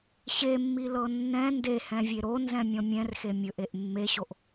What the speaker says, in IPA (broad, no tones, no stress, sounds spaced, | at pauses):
ɕ e mː i l ɤ nː ɛ̃ n d e h ɛ̃ vʲ e ɾ o n z ɛ̃ mʲ ɔ̃ mʲ ɛ̃ r x e mʲ ɵ ʔ e ʔ mː e ɕ o ʔ